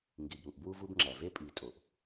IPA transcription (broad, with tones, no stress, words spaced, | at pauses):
ŋɡi˨bɾu˨ʔ bwu˦vu˦bŋ͡ǁæ˨ ve˦ pʼi˨tʼo˨ʔ